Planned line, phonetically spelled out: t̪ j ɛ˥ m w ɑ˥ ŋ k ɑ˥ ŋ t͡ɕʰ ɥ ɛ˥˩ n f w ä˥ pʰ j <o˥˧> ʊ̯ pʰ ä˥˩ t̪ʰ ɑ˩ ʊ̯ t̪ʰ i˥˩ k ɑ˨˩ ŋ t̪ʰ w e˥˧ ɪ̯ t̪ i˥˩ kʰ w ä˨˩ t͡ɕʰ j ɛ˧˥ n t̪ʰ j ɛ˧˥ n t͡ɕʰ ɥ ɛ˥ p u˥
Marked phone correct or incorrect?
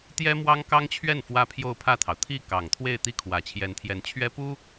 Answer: correct